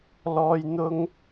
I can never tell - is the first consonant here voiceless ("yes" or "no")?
no